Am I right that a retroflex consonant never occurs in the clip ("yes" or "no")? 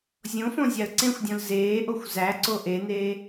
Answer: yes